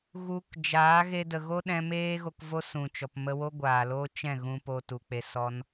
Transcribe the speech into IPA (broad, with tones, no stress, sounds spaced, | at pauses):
ɣ u˧ k d͡ʒ aː˨˦ ɣ e˧ d ə˨ ɣ o˦ ɗ ɛ̃˧ m eː˦ ɣ o˧ k v o˦ s ũ˨ t͡ʃ ɔ˨ p m ə˧ w o˦ ɡʷ aː˨ l o˦ t͡ʃ ɛ̃˦˨ ɣ ũ˧ p o˧ t u˨ k͡p e˧ s ɔ˦ n